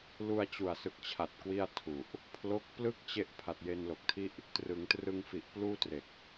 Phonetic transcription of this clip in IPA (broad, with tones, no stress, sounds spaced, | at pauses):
l u˧ a̯ t͡ɕ u˨˩ a̯ s ɯ˨˩ k̚ t͡ɕʰ a˨˩ t̚ k w i˥˩ a̯ tʰ u˨˩ ʔ | pʰ l o˦˥ k̚ p l ɯ˥˩ k̚ t͡ɕ e˥˩ ʔ pʰ a˨˩ t̚ j e˧ n l o˨˩ k̚ tʰ i˥˩ ʔ | t r ɯ˩˦ ŋ t r ɯ˧ ŋ f i˨˩ ʔ p l uː˥˩ t r e˨˩ k̚